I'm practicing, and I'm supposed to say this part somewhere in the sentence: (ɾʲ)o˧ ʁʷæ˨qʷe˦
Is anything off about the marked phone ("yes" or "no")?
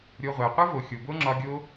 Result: no